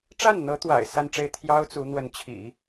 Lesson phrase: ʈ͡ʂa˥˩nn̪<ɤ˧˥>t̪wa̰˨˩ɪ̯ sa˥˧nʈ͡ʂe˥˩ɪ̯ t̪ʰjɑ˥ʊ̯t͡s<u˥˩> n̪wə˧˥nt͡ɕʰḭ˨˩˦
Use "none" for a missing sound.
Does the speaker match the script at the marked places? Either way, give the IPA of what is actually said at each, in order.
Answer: ɤ˧˥, u˧˥

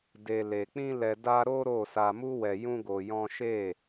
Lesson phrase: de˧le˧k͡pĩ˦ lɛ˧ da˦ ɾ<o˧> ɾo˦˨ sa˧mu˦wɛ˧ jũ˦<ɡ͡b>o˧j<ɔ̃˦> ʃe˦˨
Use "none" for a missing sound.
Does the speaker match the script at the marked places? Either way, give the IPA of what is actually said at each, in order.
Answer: o˦, ɡ, ɔ̃˦

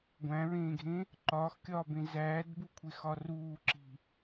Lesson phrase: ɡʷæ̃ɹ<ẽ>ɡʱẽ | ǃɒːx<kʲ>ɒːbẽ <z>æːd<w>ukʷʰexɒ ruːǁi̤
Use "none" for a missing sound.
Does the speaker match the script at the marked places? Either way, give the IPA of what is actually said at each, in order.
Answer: ẽː, kʲ, z, b

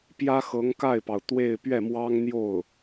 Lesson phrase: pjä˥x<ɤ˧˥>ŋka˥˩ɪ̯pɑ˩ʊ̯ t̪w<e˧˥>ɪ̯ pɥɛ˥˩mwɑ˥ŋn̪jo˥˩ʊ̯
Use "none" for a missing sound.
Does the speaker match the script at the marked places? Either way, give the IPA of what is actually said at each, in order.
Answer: ɤ˧˥, e˥˧

